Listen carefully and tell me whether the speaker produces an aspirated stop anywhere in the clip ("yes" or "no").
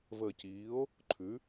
yes